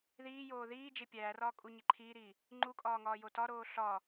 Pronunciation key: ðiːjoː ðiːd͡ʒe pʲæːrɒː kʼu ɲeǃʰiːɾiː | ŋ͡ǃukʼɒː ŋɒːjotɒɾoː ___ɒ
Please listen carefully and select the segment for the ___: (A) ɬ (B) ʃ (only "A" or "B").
A